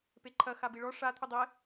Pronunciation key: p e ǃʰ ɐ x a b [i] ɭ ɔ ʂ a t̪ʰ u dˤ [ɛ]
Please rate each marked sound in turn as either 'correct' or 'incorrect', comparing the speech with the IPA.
correct, correct

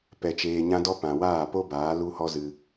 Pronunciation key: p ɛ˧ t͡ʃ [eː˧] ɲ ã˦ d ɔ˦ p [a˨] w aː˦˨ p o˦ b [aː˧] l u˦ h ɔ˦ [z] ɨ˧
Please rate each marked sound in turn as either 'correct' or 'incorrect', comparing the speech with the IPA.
correct, incorrect: ã˨, incorrect: aː˨˦, correct

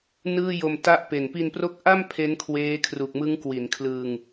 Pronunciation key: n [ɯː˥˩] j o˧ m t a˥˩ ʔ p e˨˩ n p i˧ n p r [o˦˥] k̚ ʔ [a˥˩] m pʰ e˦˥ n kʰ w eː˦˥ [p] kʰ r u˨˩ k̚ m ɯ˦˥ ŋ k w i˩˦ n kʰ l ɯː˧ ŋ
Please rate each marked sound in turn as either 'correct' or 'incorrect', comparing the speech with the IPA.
correct, correct, correct, incorrect: none

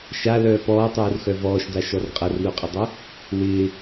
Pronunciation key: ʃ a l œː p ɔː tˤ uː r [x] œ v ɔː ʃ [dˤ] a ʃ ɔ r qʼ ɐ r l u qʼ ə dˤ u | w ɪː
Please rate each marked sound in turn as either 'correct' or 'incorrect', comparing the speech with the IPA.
correct, incorrect: d

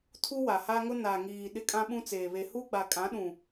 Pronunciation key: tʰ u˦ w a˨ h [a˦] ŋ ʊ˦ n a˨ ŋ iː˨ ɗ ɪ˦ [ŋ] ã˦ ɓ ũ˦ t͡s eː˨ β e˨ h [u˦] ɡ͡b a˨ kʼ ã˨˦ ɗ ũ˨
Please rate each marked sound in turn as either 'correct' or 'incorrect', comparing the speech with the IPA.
correct, incorrect: kʼ, correct

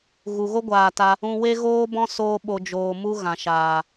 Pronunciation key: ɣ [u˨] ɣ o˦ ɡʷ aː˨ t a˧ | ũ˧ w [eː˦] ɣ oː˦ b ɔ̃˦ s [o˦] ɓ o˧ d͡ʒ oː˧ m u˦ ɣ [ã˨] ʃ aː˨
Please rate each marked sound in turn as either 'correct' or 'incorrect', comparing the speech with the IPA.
correct, incorrect: e˦, incorrect: oː˦, correct

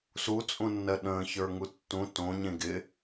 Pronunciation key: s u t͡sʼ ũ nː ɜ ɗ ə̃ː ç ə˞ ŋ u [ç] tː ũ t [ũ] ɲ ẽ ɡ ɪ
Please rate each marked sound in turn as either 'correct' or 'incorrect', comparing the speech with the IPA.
incorrect: none, incorrect: õ

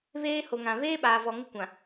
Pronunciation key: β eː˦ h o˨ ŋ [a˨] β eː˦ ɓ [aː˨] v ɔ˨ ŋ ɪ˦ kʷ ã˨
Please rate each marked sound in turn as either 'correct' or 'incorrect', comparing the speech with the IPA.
incorrect: ã˨, correct

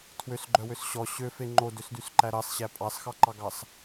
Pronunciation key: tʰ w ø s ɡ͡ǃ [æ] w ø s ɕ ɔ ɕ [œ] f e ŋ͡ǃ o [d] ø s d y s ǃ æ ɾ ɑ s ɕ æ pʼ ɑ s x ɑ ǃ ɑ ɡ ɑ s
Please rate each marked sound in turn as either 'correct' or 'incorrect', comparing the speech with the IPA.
incorrect: œ, incorrect: ø, correct

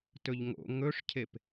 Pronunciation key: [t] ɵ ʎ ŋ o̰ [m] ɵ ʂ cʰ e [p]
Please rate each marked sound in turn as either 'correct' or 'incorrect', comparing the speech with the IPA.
correct, incorrect: ŋ, correct

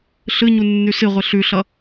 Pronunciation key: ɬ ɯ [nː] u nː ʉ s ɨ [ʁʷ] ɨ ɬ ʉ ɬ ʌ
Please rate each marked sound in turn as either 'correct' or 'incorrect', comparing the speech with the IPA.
incorrect: ɲ, correct

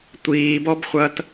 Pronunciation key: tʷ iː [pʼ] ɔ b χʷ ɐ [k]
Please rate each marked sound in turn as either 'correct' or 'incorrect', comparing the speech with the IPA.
incorrect: b, incorrect: t

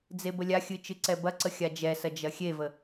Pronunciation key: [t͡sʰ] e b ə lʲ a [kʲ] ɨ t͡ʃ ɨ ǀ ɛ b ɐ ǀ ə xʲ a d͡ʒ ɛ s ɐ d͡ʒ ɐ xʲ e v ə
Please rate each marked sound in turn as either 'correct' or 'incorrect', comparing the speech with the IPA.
incorrect: d͡z, incorrect: xʲ

